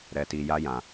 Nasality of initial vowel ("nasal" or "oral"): oral